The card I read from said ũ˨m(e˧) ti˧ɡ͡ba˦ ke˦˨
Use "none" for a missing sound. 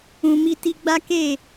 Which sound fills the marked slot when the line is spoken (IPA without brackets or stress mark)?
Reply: i˧